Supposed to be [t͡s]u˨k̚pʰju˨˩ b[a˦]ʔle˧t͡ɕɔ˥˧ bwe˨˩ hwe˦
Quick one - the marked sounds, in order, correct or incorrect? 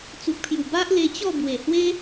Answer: correct, correct

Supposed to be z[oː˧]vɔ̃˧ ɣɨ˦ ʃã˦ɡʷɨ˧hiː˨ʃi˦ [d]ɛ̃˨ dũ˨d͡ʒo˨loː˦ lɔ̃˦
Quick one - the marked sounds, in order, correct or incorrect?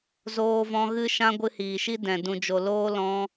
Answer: correct, correct

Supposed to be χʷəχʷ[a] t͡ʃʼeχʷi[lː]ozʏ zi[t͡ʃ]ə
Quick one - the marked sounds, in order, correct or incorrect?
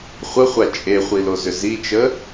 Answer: correct, incorrect, correct

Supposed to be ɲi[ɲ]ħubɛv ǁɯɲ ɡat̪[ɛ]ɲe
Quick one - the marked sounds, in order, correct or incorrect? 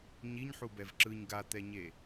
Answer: correct, correct

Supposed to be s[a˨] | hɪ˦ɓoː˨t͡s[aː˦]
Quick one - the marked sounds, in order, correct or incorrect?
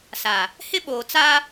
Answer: correct, correct

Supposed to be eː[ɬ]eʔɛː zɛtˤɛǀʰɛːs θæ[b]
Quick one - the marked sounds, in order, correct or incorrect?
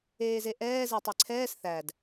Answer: incorrect, incorrect

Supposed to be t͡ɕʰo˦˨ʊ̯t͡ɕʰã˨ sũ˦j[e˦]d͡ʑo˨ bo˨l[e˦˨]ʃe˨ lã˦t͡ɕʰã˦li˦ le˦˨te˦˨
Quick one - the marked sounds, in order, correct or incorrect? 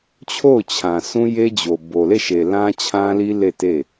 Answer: correct, correct

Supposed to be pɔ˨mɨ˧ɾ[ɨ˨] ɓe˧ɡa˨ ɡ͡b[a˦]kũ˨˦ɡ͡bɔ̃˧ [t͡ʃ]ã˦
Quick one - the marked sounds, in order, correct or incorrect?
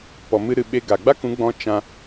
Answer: correct, correct, correct

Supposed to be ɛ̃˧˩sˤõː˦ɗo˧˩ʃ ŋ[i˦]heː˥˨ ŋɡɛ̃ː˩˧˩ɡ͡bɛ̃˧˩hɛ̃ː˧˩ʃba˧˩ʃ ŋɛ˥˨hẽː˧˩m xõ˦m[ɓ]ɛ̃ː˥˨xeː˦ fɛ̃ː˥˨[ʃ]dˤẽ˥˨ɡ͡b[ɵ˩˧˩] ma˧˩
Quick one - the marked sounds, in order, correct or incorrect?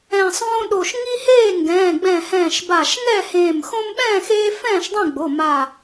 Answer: correct, correct, correct, incorrect

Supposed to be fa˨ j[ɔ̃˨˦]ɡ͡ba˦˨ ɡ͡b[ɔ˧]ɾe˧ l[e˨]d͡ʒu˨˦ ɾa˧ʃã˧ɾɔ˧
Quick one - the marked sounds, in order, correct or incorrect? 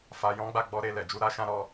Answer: correct, correct, incorrect

